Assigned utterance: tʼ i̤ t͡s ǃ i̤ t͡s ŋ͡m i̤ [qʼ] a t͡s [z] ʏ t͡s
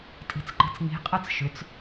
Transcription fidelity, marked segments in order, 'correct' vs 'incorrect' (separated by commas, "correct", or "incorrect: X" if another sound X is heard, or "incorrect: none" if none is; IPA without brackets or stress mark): correct, incorrect: ʃ